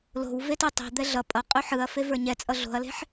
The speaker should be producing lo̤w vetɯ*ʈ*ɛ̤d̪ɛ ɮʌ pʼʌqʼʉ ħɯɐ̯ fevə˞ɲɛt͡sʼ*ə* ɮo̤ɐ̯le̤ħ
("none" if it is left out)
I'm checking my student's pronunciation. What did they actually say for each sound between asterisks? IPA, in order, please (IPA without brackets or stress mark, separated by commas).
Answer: tˤ, ʌ